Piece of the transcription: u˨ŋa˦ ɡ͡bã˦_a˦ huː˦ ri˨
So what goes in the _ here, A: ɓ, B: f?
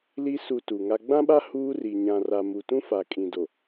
A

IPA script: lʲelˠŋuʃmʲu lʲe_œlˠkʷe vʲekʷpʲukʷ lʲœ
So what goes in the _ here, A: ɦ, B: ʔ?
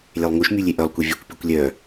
B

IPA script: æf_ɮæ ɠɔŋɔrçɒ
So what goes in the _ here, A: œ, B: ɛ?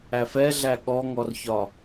B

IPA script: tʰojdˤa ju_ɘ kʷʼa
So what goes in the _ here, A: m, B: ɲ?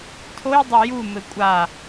A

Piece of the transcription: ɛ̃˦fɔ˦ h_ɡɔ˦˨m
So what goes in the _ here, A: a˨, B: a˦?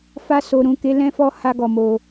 B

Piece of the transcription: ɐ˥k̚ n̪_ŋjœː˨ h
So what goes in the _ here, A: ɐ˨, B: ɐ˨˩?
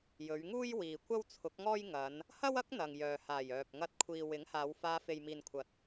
A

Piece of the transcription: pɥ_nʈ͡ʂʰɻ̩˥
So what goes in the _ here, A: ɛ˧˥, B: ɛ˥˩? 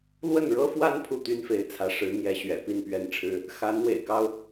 B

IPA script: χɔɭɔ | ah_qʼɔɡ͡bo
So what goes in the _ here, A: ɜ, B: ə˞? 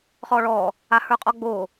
B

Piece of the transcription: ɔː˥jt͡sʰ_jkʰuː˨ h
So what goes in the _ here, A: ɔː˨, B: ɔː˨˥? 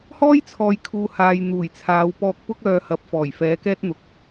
A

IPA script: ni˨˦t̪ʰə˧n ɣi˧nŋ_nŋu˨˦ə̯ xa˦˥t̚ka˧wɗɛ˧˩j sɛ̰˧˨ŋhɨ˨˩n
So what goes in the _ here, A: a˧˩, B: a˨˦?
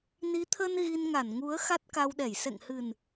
A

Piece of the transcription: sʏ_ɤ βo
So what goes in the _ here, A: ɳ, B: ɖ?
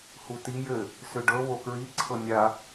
B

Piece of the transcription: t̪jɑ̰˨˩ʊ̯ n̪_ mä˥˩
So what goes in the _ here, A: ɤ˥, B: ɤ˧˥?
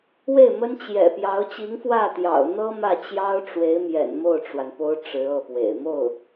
A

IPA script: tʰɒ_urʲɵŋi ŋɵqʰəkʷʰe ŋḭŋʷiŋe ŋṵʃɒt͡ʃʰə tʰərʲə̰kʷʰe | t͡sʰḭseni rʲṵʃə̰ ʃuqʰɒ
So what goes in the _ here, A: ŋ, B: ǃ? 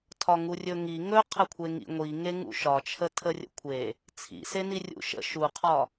A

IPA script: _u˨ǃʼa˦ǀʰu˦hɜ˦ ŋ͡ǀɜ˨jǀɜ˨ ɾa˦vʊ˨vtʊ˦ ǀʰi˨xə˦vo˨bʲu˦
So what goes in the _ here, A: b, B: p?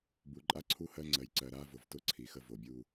A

